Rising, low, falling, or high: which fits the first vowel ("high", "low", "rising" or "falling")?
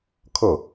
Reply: falling